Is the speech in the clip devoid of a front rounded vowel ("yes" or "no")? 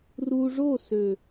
no